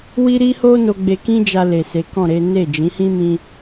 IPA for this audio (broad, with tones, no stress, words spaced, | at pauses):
wi˦ɾi˦ho˦ no˧ɡ͡be˧kĩ˦d͡ʒa˧ le˨se˨˦kɔ̃˦˨ɾe˨˦ ne˦˨ d͡ʒĩ˨˦hĩ˦ mĩ˦